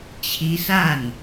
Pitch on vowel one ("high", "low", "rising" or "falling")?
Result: rising